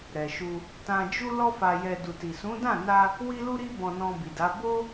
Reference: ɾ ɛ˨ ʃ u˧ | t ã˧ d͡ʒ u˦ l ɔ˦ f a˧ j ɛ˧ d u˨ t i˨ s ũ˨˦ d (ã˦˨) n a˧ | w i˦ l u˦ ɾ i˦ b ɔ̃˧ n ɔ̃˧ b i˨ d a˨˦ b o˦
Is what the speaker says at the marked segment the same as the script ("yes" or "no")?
yes